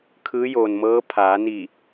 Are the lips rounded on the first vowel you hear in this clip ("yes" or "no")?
no